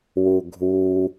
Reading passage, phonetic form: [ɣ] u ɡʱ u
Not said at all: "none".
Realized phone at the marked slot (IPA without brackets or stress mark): w